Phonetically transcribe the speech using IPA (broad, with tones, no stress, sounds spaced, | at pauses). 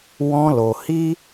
w ɔ̃˧ l o˨ h i˦